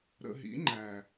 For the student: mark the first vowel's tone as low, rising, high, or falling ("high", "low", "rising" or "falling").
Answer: low